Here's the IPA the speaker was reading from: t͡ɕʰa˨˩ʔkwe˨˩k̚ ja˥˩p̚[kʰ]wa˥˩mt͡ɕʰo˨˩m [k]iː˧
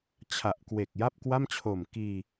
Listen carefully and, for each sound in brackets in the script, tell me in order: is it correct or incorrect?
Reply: incorrect, correct

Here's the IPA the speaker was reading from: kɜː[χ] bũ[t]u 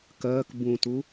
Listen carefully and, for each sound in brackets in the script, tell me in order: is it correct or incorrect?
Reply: incorrect, correct

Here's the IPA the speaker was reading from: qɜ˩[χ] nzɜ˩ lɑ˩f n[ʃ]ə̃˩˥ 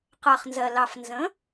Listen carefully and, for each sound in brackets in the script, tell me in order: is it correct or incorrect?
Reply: correct, incorrect

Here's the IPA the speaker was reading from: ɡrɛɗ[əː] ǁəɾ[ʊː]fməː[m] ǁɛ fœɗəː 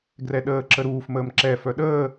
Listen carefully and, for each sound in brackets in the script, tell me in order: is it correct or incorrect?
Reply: correct, incorrect, correct

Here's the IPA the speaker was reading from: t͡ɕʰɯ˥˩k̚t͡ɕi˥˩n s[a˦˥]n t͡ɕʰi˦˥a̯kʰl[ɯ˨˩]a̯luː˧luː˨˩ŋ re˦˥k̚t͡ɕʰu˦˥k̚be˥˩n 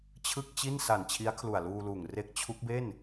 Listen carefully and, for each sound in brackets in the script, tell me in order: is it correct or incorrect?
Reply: incorrect, incorrect

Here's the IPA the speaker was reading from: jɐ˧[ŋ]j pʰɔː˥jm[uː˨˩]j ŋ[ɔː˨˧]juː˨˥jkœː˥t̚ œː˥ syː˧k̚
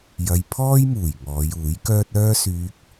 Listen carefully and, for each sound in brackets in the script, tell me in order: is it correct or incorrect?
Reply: incorrect, correct, correct

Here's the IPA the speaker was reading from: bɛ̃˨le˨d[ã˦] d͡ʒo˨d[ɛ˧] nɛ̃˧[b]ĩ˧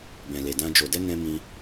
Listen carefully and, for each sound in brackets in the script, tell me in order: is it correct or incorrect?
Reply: incorrect, correct, incorrect

